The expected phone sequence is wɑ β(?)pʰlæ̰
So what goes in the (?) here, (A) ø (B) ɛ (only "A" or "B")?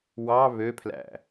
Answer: A